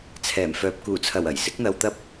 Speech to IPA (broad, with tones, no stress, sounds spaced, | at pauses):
t͡sʰ ɛː˨˩ m f œː˨ p̚ k uː˨˩ t͡sʰ ɐ˨˩ w ɐ˨˩ j s ɪ˨˥ k̚ n̪ ɐ˧ w t̪ ɐ˥ p̚